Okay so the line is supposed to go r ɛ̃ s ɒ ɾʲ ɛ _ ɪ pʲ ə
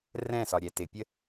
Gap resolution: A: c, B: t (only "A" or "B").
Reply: B